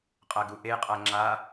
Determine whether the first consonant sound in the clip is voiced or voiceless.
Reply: voiceless